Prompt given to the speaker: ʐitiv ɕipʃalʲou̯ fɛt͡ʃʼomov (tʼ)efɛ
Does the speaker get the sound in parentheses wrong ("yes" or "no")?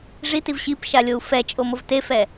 yes